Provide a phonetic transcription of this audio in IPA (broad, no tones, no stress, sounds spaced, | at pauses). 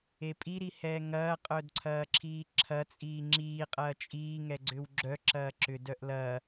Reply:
e pʼ i ɾ i h ɛː ŋ ɐː qʼ œ d ǀʰ ɐː ǁʰ iː ǁʰ ɐ t͡sʼ iː ŋ͡ǁ iː qʼ ɐː t͡ʃʼ iː ŋ ɛ ɡ͡ǀ ʏ w ɡ͡ǁ œ ǁ ɐː ǁ ʏ d œ ʔ l ɐː